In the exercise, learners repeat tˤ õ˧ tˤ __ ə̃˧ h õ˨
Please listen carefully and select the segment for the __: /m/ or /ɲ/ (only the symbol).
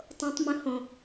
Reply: m